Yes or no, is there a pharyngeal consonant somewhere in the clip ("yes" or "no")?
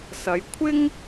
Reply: no